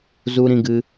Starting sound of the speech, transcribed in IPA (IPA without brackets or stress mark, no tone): z